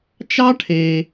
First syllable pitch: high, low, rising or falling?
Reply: high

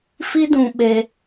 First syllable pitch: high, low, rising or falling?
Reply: high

